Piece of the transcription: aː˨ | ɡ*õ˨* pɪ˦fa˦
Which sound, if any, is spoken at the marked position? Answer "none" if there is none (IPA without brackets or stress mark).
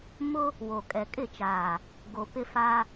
o˨